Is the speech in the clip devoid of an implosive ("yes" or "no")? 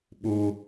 no